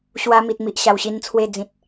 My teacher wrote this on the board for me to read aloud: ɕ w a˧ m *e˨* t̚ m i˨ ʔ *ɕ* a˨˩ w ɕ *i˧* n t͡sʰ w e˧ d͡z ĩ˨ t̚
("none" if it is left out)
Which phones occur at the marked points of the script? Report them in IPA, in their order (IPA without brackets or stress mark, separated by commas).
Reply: i˨, ɕ, i˧